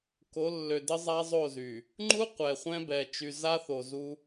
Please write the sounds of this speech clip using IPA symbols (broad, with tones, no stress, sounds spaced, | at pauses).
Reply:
k o˨˦ lː ø˨ d ə˦ zˤ a˦ zˤ o˦˨ z y˨ | ŋ͡ǃ u˦ qʷ ɛ˨ χʷ ɛ̃˦ b ɛ˨ t͡ʃ y˨ z a˦ θ o˨ z u˦